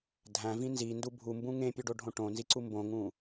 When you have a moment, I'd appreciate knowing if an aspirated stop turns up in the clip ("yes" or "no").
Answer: no